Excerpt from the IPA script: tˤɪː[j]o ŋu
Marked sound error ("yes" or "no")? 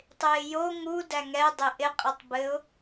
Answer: no